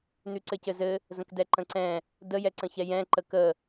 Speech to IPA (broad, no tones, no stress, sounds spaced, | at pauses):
n ʉ ǀ ɘ c ɘ z ɘ | z ə̃ k d ɛ ǃ ə̃ ǀ ɛ̃ | d ə j ɛ ǀ ə̃ ç ɛ j ɛ̃ ǃ ə k ə